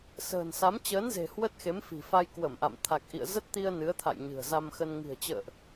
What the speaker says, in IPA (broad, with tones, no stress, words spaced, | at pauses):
sə̤ː˨˩nsa˨˦m t͡ɕəː˨˦nze̤˨˩ hwə˦˥t̚ xe˨˦mfi̤˨˩fa˧j kwə˧˩mʔa̰˧˨m t̪ʰa˨˩k̚ʔḭ˧˨ə̯ zə˦˥t̚t̪i˧ə̯ nɨ˨˦ə̯t̪ʰa̰˧˨jɲɨ̤˨˩ə̯ za˧mxə˧n ŋi̤˨˩ə̯t͡ɕə̰ː˧˨ʔ